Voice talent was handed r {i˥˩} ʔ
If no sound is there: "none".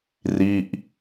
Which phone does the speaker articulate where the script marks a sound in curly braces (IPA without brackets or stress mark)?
i˥˩